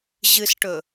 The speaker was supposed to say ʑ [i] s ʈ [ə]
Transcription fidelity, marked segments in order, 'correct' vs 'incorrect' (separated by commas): incorrect, incorrect